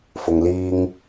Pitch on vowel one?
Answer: low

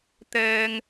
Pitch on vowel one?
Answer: low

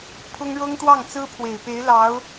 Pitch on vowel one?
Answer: high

